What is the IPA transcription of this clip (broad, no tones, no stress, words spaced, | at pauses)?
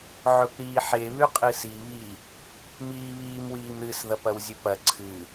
ʕɵpɾiːħe βʉqʼɨsi βi | miːβiːmwiːmɾɨs ðɐpɐwzʲʉpɐ ǀʰɨ